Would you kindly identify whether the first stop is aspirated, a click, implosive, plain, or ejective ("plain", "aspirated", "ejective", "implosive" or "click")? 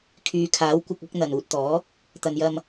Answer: aspirated